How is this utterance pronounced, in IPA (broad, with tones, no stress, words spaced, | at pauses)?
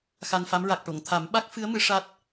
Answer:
xa˧nfa˧˥m ɹa˨˩k̚ʈo˨˩˨ŋ t̪ʰa˨˩˦m ɓa˦˥k̚fɨ˧˥ə̯mɨ˨˩˦ ʂa˦˥t̚